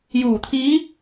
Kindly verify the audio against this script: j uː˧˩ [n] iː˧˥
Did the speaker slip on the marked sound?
yes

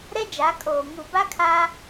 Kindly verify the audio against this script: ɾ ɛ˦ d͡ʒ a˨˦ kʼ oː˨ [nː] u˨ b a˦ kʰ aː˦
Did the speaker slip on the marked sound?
yes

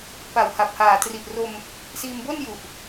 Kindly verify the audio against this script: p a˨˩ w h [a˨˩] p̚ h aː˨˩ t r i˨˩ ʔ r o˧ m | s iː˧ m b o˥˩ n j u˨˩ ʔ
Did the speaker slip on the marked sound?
no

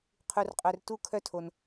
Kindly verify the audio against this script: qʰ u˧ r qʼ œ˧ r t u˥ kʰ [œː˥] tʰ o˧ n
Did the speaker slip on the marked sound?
yes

